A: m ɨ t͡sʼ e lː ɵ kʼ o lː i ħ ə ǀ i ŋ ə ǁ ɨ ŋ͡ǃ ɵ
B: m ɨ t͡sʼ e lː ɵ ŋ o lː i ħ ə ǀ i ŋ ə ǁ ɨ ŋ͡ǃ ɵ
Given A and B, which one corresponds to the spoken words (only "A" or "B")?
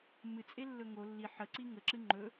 B